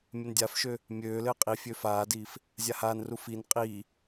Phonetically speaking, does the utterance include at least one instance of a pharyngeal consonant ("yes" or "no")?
no